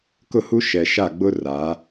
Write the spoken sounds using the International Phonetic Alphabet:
k ʊ˦˨ h u˦ ʃ ɛ˨ ʃ a˦˨ ɡ͡b ʊ˦ r a˨˦

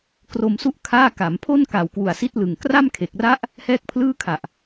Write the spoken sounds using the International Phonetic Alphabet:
k r o˧ m s u˥˩ ʔ kʰ aː˥˩ k a˩˦ m pʰ o˥˩ n k a˨˩ w k w u˨˩ a̯ s i˦˥ t̚ l ɯ˨˩ ŋ k r a˥˩ m kʰ e˨˩ k̚ r a˦˥ ʔ | h ɛː˥˩ k̚ pʰ l ɯː˥˩ kʰ a˨˩ ʔ

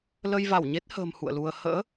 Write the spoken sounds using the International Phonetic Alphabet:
l ə˧ j v a˧˩ w ɲ e˦˥ t̚ h ə̤ː˨˩ m h ṵ˧˨ ə̯ l u˧ ə̯ h ə̰ː˧˥

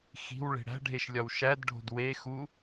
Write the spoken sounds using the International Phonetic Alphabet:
x i̤ w ɭ e̤ ɽ æ̤ ɖʱ e ʃ lʲ ɒ w ʃ æ d ɖʱ o̤ d w e x u

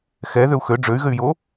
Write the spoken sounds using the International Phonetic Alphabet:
x ɛ ð ø u̯ x ø ɖ͡ʐ ø y̯ ɣ ɘ y̯ j o

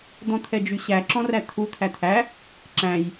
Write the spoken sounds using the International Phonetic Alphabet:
d̪ ɔ̃ t̪ʰ ɛ d͡ʒ y ɕ æ ǁ ɔ̃ r æ t̪ʰ u t̪ʰ æ t̪ʰ æ | ǁ æ̃ j

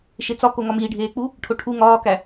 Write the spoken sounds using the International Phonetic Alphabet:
ʃ e t͡s ɒ k o ŋ ɒ m iː ɖʱ eː k͡p u | ʈʰ o ʈʰ u ŋ ɒː k æ

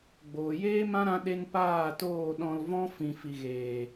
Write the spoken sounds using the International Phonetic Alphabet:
ɡ͡b oː˨ j eː˦ m ã˦ ɾ ã˦ ɗ e˦ n p aː˦˨ t oː˦˨ ɗ ɔ̃˧ l v ɔ̃˦ f ĩ˨ f i˨ ɣ eː˨

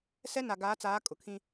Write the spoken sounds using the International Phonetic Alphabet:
s ɛ˦ n a˨ ɡ aː˨˦ t͡s aː˨˦ kʼ ʊ˨ kʰ ĩ˦

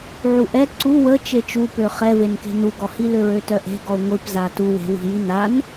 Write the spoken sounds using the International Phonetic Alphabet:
ʕ u ʔ ɛ ǀ u w ə t͡ʃ e t͡ʃ u p ø χ ɛ v e n k e̤ n u ɡ ɔ h i l ø ɹ ø t œ ʔ e̤ ɡ ɔ ʊ̯ ŋʷ i p z a t u w e̤ w i̤ j i n a n

